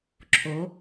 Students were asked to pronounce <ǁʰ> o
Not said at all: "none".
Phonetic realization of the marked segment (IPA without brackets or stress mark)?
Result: ǁʰ